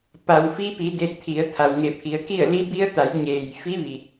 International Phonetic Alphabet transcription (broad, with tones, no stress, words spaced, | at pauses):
pa˩wfi˧pi˩˧ de˧t̚t̪ʰi˩˧ə̯ t̪ʰa˩wŋe˧˩pʰi˩˧ə̯ki˥˨ə̯ li˧˥bi˧˥ə̯ t̪a˩˧jɲeː˩jfi˧˥ʋi˩